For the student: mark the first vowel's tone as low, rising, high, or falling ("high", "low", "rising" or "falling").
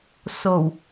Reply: low